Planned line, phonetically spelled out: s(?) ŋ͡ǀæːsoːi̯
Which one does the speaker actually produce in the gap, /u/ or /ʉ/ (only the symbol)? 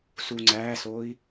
u